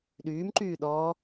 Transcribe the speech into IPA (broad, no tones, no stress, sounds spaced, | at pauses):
ɗ yː m ǃ yː ɗ ɔː